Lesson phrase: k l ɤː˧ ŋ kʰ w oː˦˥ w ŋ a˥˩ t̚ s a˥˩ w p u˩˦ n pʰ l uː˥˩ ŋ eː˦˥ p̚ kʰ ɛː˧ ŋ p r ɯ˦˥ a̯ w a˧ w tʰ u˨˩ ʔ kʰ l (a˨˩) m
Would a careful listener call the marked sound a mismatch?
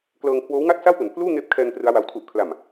no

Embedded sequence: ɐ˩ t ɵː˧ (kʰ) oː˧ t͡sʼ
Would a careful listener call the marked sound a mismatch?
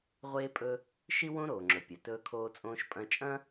no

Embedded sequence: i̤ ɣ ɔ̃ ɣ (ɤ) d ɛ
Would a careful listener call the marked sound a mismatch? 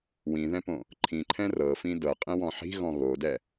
yes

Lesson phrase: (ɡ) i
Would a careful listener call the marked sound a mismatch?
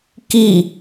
yes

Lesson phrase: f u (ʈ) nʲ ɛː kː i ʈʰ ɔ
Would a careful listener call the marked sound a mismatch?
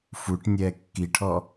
no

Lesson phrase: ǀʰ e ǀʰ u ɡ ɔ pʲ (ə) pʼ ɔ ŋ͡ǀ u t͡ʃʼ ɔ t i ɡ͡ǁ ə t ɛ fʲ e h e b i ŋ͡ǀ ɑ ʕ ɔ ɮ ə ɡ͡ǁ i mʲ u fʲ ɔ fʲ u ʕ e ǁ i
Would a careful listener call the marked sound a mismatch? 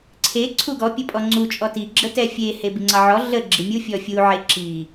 no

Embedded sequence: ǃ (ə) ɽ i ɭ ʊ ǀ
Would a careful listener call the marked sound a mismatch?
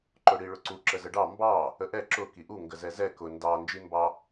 yes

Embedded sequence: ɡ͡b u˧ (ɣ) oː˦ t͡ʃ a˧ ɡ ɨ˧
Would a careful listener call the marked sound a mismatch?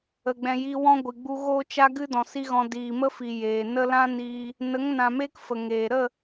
no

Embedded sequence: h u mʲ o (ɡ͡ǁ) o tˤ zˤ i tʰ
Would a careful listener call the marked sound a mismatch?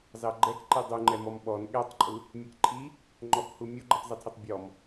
yes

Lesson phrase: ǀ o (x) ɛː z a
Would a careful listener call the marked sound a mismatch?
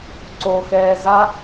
no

